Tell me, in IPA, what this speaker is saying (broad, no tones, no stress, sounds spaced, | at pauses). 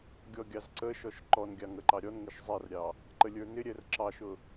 ɡʲ ɔ ɡʲ ɑ z ǀ ə ʃ ɔ ʃ ǃ ɔ n ɡʲ ɑ ŋ ə ǃ ɑ ɾʲ ɔ n ŋ ɪ ʃ zˤ ɛ r ɾʲ ɑ | ǃ ə lʲ ə˞ n ɪ ɾʲ ɛ r ǁ ɑ ʃ ʊ